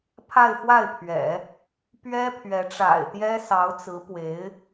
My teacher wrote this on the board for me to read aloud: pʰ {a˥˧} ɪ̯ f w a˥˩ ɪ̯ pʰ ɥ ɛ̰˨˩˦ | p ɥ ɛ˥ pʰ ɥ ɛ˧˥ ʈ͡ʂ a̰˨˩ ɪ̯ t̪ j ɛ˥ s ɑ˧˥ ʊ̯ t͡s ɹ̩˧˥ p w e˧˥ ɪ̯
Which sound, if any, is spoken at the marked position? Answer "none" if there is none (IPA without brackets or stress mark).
a˥˧